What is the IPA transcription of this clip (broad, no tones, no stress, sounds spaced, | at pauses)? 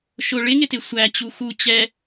ʃ ʊ ɭ ɪ ŋ ɪ t ɪ sʷ æ t͡ɕ u x u t͡ɕ ɛ